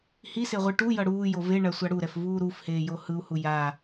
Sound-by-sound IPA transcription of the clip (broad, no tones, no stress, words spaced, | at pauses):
hiseʁʷɯ ʈujʌ ɽuːjo veɳasʷa ɽuɾɛfvuː ɾufheːjo hɯu̯hu ja